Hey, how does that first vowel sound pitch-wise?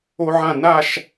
high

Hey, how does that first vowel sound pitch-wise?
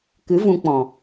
rising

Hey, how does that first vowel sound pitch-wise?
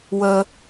low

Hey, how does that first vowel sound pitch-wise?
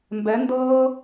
rising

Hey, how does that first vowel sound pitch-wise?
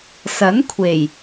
rising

